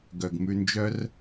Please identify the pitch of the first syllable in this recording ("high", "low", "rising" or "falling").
low